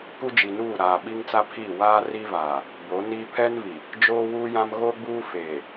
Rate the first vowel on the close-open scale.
close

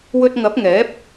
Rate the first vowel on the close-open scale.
mid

